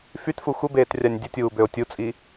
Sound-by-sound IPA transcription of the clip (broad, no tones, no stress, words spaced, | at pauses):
fytfu xʷəbeːtrʲanʲ dʲətʲuːbøo̯ tʲut͡sʼi